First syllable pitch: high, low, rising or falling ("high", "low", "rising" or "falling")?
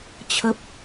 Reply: low